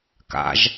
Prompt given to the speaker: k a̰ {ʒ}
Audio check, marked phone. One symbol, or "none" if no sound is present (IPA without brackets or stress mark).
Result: ʒ